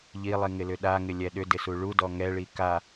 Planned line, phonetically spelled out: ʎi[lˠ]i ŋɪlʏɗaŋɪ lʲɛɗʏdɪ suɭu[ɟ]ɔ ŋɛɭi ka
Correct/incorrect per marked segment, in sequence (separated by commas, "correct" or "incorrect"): correct, incorrect